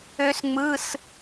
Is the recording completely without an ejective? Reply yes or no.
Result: yes